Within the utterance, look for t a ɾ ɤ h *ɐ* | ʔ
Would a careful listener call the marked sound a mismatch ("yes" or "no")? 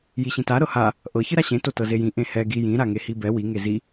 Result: yes